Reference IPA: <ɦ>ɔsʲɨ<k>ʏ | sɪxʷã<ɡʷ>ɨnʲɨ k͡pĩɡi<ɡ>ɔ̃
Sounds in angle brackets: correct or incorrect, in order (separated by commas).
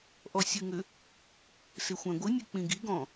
incorrect, incorrect, correct, correct